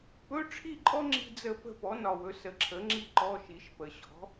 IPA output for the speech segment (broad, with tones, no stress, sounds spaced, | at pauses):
p ɵ˧˥˧ ʈ͡ʂʰ i˥˨ ǃʼ ɔ˥ ŋ͡ǁ i̤˥ d͡z ə˥˨ p ə̤˥ p ɔ˩˥ n ɒ˨˩ w ɵ˩˥ s ə˩˥ ǁʰ ə˩˥ ŋ͡ǁ i˥ ǃ ɔ˧˥˧ ʃ i˩˥ ʃ p ə˨˩ ɕ ɔ̤˩˥